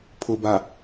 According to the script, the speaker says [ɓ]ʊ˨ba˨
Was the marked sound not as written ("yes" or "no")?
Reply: yes